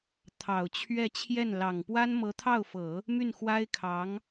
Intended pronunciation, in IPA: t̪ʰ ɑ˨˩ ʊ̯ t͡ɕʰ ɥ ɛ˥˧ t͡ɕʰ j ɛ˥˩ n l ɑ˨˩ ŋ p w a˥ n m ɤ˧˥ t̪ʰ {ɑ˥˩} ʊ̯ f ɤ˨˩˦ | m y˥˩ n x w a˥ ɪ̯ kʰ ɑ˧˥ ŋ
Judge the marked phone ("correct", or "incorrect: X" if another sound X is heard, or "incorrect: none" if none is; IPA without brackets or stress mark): correct